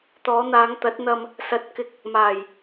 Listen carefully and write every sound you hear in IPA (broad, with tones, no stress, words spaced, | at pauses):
t̪ɔː˨˧n̪aː˨˧ŋ t̪ɐ˨˥t̚n̪ɐ˧m | sɐ˨˥t̚kɪ˨k̚ | maː˨˩j